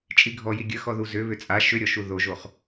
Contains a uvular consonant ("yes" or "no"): yes